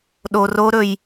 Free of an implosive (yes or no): no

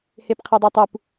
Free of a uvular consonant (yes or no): no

